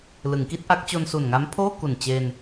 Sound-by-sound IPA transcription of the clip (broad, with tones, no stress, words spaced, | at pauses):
lɯ˩˦ŋki˦˥t̚ʔa˦˥k̚ t͡ɕo˧nsu˨˩nŋa˦˥mpʰoː˥˩ ku˨˩n t͡ɕe˧n